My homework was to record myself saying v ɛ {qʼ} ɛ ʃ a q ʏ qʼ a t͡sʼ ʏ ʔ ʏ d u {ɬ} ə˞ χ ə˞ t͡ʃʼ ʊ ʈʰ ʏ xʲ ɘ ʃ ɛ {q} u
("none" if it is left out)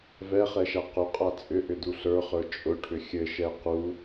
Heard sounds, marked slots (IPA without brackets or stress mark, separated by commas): χ, ɬ, q